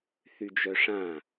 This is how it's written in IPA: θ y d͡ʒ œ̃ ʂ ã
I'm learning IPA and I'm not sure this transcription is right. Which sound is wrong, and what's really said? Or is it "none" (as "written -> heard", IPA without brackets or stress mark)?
œ̃ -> œ